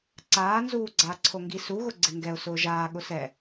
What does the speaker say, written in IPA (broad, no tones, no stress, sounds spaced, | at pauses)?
ǀ aː n z uː ɡ͡ǀ aː ǀʰ o ŋ ɡ i s u ɣ ʊ ɡ͡ǀ ɪ ŋ ɡ ɛ ʊ̯ s ʊː ʒ aː ɠ ʊ s ɛ